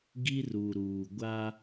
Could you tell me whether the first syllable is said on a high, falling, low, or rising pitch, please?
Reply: high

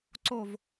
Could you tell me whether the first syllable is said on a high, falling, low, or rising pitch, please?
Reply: falling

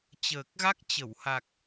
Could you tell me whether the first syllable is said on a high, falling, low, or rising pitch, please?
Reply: low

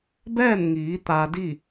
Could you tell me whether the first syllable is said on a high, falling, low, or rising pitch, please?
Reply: falling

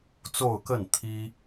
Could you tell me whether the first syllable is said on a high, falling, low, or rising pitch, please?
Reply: falling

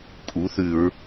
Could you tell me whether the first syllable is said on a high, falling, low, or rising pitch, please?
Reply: rising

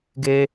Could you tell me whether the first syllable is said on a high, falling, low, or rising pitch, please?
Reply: high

